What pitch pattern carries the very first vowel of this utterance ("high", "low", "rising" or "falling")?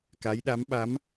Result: rising